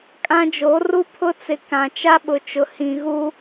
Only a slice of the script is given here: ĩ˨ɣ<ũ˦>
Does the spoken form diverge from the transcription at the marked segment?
yes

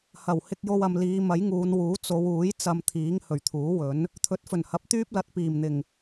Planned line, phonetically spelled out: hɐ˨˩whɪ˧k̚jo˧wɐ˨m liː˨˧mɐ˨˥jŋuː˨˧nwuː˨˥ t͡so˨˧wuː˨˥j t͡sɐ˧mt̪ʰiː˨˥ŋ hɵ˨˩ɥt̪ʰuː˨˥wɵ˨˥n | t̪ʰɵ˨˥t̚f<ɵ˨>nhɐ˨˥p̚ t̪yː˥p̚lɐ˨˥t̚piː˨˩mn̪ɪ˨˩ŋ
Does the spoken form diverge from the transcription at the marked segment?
yes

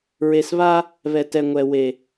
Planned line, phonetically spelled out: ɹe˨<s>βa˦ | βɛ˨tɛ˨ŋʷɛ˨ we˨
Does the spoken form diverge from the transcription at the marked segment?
no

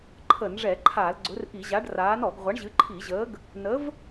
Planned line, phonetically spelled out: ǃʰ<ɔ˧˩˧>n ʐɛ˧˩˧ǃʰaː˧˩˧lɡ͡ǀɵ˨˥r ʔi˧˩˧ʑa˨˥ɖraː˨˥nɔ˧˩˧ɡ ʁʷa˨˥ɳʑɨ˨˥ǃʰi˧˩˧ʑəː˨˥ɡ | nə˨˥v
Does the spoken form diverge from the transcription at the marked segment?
yes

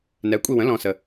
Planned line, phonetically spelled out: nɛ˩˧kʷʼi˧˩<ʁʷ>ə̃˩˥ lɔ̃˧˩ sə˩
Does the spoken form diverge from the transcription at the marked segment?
yes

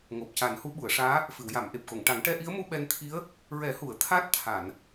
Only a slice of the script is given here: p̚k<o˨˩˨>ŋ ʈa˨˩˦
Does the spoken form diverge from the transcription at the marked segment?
no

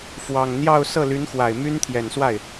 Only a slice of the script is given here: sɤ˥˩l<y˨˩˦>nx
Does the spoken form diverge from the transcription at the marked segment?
yes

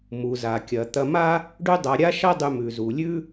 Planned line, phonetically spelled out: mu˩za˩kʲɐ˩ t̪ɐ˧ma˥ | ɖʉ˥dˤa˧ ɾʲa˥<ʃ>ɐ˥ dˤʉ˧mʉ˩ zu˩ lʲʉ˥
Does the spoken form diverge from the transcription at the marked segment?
no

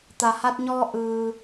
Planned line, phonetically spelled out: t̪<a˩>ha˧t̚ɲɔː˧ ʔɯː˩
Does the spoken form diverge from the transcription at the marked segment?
no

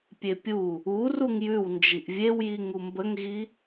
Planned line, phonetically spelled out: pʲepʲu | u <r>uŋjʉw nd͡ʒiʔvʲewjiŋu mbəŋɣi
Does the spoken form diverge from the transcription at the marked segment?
no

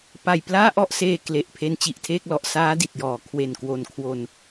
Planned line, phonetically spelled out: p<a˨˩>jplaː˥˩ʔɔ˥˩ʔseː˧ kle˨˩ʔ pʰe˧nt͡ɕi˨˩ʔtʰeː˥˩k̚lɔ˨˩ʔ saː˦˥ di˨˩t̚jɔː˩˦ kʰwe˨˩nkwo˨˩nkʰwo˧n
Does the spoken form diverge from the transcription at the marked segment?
no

